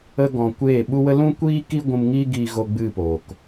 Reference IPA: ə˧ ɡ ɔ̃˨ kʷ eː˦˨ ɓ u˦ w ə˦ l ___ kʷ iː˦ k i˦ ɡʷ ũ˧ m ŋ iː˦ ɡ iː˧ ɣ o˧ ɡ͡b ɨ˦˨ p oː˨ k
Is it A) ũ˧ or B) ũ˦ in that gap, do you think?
B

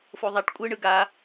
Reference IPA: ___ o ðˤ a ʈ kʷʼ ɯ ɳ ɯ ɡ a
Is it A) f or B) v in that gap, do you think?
A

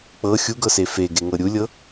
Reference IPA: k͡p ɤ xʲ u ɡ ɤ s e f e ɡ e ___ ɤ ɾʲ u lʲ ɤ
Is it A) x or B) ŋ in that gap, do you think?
B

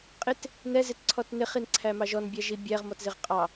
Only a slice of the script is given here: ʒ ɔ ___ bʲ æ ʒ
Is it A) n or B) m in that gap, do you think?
A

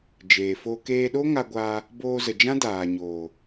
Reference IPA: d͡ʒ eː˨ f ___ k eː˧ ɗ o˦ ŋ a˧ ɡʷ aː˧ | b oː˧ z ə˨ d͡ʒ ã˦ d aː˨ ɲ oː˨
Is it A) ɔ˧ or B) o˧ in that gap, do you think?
B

